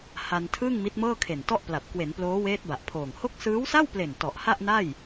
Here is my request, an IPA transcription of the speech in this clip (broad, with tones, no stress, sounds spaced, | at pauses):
h a˧ n tʰ ɯː˥˩ ŋ m i˦˥ t̚ m ɤː˥˩ kʰ e˨˩ n t ɔ˥˩ ʔ p l a˨˩ p̚ k w e˩˦ n p l oː˦˥ w eː˦˥ t̚ b a˨˩ ʔ pʰ oː˨˩ ŋ h o˦˥ k̚ s ɯː˦˥ w s a˥˩ w p l e˨˩ n t ɔ˨˩ ʔ h a˥˩ ʔ n a˥˩ j